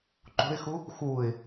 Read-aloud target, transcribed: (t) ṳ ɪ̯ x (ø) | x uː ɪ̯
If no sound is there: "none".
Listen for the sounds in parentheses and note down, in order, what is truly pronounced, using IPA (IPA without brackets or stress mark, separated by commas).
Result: ǃ, u